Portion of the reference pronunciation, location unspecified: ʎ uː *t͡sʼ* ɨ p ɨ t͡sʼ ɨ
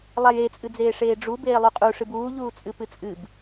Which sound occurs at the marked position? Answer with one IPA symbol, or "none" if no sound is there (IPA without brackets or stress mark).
t͡sʼ